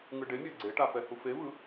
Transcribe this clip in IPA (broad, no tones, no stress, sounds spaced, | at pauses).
ŋ ɯ ɖ e mʲ a ɡ͡ǀ e ʈ a f ɛ h u f e v ɯ